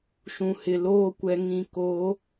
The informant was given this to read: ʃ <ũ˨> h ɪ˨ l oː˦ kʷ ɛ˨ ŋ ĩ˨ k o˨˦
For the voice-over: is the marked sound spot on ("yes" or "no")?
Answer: yes